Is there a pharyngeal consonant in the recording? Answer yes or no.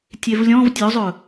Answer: no